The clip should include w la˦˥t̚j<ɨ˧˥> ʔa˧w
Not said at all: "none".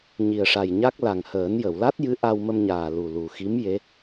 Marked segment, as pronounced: ɨ˧˥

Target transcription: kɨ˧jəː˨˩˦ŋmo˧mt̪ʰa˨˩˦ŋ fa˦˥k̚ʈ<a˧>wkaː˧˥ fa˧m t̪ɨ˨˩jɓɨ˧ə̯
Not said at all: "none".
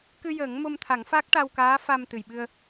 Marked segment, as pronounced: a˧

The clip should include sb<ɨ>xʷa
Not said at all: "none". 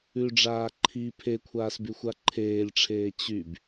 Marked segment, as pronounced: y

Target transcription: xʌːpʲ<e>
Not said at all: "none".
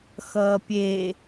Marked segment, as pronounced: e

